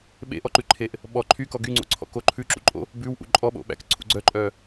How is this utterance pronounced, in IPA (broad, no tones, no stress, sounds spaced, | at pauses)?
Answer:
ɓ ḛ ʔ ɔ ǃ ʉ ǃʰ e ʔ | ɓ ɔ ǃʰ y k ɔ ɡ y ŋ͡ǀ o̰ ǀʰ ɔ̰ k o ǃʰ ʉ ǁ ṵ ǃʼ o̰ | b ʉ w ʔ ṵ ǃʼ ɔ ɓ o̰ ɓ æ̰ k ǀʰ ṵ ɡ͡ǀ œ ǃʼ œ